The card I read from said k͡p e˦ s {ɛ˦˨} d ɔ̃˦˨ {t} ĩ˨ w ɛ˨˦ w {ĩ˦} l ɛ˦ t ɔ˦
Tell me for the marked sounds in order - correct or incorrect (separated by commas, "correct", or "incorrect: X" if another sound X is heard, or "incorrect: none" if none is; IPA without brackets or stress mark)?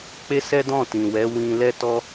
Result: incorrect: ɛ˦, correct, incorrect: ĩ˧